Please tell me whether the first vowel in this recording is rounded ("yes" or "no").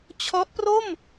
yes